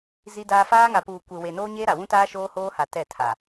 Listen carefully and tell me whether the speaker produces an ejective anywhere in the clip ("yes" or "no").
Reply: no